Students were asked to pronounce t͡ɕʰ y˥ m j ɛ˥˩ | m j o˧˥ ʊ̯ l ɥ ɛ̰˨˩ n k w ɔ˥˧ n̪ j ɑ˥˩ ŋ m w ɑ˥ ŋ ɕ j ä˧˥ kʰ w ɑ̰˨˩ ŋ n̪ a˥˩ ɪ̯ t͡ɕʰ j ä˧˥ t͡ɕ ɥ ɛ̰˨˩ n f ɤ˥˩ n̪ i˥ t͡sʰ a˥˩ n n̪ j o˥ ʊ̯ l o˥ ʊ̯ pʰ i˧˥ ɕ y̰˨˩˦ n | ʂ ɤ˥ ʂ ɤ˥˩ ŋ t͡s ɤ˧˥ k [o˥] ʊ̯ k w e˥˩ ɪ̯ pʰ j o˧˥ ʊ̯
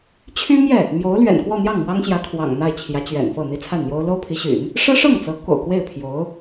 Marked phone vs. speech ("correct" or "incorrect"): incorrect